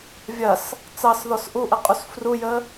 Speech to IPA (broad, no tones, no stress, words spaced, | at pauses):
vʲɐs | t͡sɑsðɔs ʔuʔəqʼus frujə